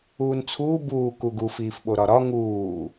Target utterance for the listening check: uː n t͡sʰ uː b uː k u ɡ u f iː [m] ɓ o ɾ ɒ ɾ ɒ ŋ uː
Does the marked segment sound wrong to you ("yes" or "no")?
yes